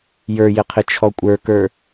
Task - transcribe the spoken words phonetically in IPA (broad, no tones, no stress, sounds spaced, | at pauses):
j ə˞ j ɪ qʰ ɪ t͡ʃʰ ɔ kʷʼ ə˞ k ə˞